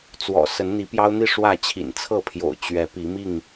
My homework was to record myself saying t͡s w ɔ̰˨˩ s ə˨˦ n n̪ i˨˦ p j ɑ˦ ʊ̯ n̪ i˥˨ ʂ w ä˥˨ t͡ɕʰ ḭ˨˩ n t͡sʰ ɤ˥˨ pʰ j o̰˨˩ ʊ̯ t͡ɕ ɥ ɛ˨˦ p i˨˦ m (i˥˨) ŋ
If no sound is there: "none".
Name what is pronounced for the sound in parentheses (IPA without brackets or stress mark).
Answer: i˥˨